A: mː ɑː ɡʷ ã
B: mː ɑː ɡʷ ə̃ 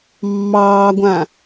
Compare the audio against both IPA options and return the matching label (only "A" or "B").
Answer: A